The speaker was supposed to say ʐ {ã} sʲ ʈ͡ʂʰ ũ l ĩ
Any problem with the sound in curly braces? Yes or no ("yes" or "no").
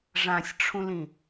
no